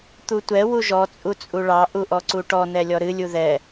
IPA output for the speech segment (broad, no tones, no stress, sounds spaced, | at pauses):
t̪ u tʷ ɛ w u ʒ ɔ t͡sʼ u t͡sʼ u ɭ ɑ ʔ u ʔ ɔ ǀ u ʈ ɔ n ɛ lʲ ɔ ɾ ɨ lʲ u ð ɛ